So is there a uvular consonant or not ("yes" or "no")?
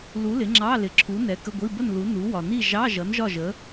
no